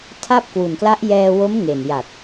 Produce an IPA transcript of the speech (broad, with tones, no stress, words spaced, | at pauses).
tʰa˥˩p̚kwu˨˩nkla˦˥ʔ jɛː˧wo˦˥m ŋe˨˩nja˨˩t̚